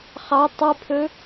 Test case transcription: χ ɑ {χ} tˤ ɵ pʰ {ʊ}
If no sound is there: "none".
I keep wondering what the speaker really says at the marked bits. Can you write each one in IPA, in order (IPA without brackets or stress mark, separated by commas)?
none, ɵ